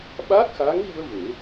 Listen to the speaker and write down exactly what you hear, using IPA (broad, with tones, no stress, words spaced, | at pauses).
ɓa˦˥k̚xa˧˥ŋɣi˧ə̯ ve˨˩˦